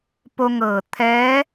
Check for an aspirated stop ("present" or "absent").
present